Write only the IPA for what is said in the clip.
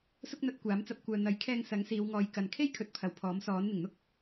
s ʊ˥ k̚ n̪ ɐ˧ t̚ kʷ aː˨˥ m t͡s ɐ˧ p̚ kʷ œː˨ n̪ ɐ˨˥ j kʰ ɛː˧ ŋ s ɐ˨˥ ŋ s iː˨˧ w ŋ ɔː˨˧ j k ɐ˨ n kʰ e˥ j kʰ ɵ˨ t̚ pʰ ɐ˨ w pʰ ɔː˨˥ m s ɔː˨˥ n n̪ ɪ˨˩ ŋ n̪ ʊ˥ k̚

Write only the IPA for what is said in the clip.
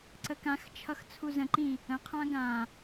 ǀ ə k ã x t͡ʃʰ ʌ x t͡sʰ u z ə̃ ǃ ĩ | ə̃ qʰ ã ɡ ã

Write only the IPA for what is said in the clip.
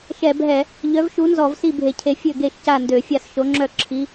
ʃ ɛ˧˩˧ bʱ ɛ˧˩˧ | ʎ œ˨˥ v ʃ u˨˥ n z ɔ˧˩˧ v s i˥˩ bʱ e˧˩˧ cʰ e˨˥ fʲ ø˥˩ ɡ e˥˩ ʃ c a˥˩ n d ø˧˩˧ fʲ a˥˩ s ʃ o˨˥ ŋ͡ǁ œ˥˩ ǁʰ i˨˥

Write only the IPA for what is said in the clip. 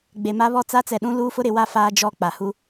ɡ͡b e˨ m a˦ β ɔ˦ t͡s a˦ t͡s ɛ˨ ɗ ũ˦ l uː˦ f ʊ˦ ɾ ɪ˨ w a˦ f aː˦ d͡ʒ ɔ˦˨ k͡p a˨ h u˦

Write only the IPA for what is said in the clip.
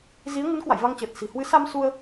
z i˨˦ ə̯ ŋ ɨ˨˦ n k w a̰˧˨ j v a˧ ŋ t͡ɕ əː˨˩ t̚ s i̤˨˩ h w ɨ˨˦ s a˧ m s u˧ ə̯

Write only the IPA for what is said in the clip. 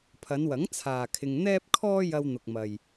pʰ ɐ˨˧ n w ɐ˨˥ ŋ t͡sʰ aː˨ kʰ ɪ˧ ŋ n̪ ɛː˥ p̚ kʰ ɔː˥ j ɐ˧ w n̪ ʊ˨ k̚ m ɐ˨ j

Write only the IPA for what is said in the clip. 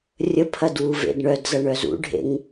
rʲ ə pʰ ɐ d w u v ḛ d ɳ œ d z ɐ ɳ œ z ṵ ɖʱ ḛ ŋ

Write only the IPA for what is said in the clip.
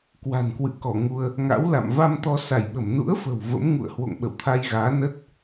k w a̤˨˩ n k w ɨ̰˧˨ k ɔ˧˩ ŋ u˧ ə̯ | ŋ a̰˧˥ w l a̰˧˨ m v a˧ m t̪ ɔ˧ s a˧˩ j ɓ ə˧˩ m n ṵ˧˥ ə̯ f ə̤˨˩ w v ə̰˧˥ m ŋ ṵ˧˨ ə̯ h w o̰˧˨ ŋ ɓ ə̰˧˨ w t̪ʰ a˧ j ɣ aː˨˦ n ə˦˥ t̚

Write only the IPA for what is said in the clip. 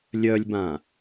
lʲ œ lʲ b ã

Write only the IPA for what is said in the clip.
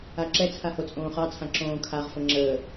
a ǁ ɛ t͡sʰ a h o t͡sʼ õː χ ɑ t͡sʰ ã ǁ õː kʰ a ʁ f ə ŋ͡ǁ əː

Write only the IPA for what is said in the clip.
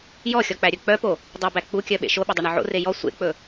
j ɔ xʲ ɔ k͡p æ ɾʲ ɵ k͡p œ p o | dˤ ɵ b æ k͡p u kʲ œ ɓ ḛ ʃ o ɓ ɵ dˤ e ɳ ɔ ʕ o̰ r e j ɔ sʷ ḛ k͡p ɵ

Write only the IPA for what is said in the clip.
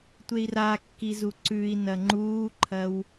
tʷ e i̯ r a kː i z u ǀ ʉ i̯ n ɐ ŋ͡ǃ uː ǃʰ ɐ w

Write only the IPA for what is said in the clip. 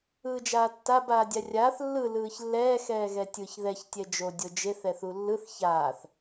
ɯː d͡ʒ aː tː a b aː dʲ a rʲ aː θ lː ɯ l ɯː ç lː ɛː x ɛː ɣ ɛ tʲ ɯ ç ð ɛ ç tʲ ɛ d͡ʒ o dʲ o d͡ʒ e θ ɛ θ u lː ɯ θ ç aː θ

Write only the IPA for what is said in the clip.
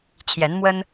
t͡ɕʰ j ɛ˨˦ n m w ə˦ n

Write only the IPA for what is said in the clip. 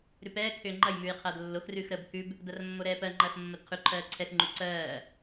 ɾ ʉ p ɛː kʰ ʏː ŋ͡ǃ ɐ j m ʉː j qʰ ɐː d lː o x r ʉː x ɾ əː b pʰ ʉ b | d ɐ r mː o ɾ ɛː p ɜ ŋ͡ǃ ɐː x mː o d qʰ ʉ ǃʰ ɜː ǀʰ ɛ x ŋ͡ǃ ʉ ǀ ɜː

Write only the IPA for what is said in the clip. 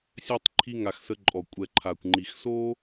sʲ ɛ˦ tˤ ǃʰ i˦ ŋ a˧ x s ə˧ ǃʼ ɔ˨ kʷʼ ɛ˨ ǃʰ a˨ kʷ ŋ͡ǃ i˨ x s o˦

